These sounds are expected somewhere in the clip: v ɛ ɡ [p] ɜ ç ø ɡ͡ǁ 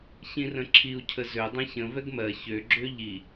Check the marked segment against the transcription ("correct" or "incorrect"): incorrect